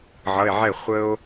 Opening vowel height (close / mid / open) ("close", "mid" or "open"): mid